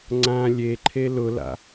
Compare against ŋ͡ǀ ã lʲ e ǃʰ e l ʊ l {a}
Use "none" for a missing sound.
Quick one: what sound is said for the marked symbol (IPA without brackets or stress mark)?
a̰